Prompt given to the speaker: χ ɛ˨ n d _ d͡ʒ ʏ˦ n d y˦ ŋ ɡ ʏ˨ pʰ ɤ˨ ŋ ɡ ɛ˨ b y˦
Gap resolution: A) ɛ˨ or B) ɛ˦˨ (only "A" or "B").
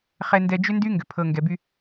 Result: A